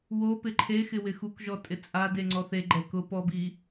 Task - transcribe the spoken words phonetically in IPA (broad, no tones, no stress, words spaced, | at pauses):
wo pɪǃʰexɪ wɪxukʒɔ tʼɪt͡sʼade ŋ͡ǀɔθeɡ͡ǃɛ kʊ pɔbi